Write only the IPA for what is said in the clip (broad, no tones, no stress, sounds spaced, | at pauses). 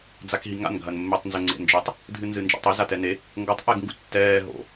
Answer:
d͡z a k ɦ i ŋ a̰ n ɡʱ ɐ n mː e tˤ n z ɘ ŋ͡ǀ ḛ n d͡ʒ ɘ tˤ | dʱ ɨ n z ɨ n d͡ʒ a̰ tˤ i z a t ɛ n e | ŋ ɡ o tˤ ʔ ɛ ɡ ŋ ɡ ṵ tː ɛː ɦ o̰